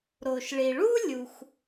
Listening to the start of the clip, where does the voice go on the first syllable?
low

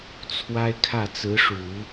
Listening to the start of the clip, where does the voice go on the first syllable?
high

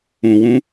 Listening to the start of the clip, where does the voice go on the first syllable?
low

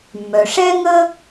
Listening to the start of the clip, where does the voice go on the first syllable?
low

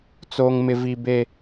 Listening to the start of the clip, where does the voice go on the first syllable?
high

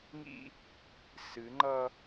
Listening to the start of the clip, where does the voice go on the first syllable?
high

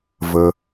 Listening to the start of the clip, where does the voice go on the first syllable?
high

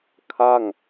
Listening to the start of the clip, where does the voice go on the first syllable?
falling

